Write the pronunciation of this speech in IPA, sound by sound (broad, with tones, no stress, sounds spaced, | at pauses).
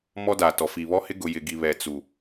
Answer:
m ɔ˦ d aː˨ t ɔ˨ f i˨ β ɔ˦ h ɪ˦ ɡ ʊ˨ j ɪ˨ ɡ i˨ β ɛ˨ t͡s u˨